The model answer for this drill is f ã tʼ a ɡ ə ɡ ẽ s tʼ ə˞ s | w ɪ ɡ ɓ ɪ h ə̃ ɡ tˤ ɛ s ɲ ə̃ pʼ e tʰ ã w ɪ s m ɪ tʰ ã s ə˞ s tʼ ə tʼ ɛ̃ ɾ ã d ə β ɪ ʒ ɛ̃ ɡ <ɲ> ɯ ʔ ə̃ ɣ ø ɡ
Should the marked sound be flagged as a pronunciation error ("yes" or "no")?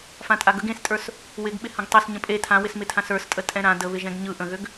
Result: no